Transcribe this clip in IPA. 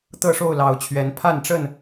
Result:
t̪ɤ˥˨ʂo˥˨ʊ̯lɑ˨˦ʊ̯t͡ɕʰɥɛ˨˦n pʰa˥˨nʈ͡ʂə˥˨n

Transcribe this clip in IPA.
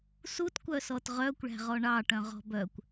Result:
sutkʷœsɔt ʁœkʷɭæ̤ʁɔ ɳɑʈœ̃ʁɔ̤ bœkʷ

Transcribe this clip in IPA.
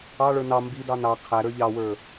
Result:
ɑɭə˞ nɑ mbidɑ nɑ qʰæɾə˞ ʎɑwə˞

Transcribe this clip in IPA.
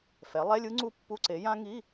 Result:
fɛ˩˥lˠɛ˧˥˧lʲɯ˦˥ ŋ͡ǀu˦˥pːu˧˥˧ ǀe˩˥jã˦˥ ŋi˧˥˧

